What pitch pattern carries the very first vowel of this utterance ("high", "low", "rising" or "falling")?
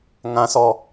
high